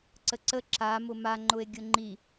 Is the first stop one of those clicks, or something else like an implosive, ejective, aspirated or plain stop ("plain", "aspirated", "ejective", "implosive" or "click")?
click